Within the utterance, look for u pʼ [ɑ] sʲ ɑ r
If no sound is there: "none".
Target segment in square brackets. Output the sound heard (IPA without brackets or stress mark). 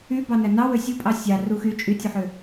ɑ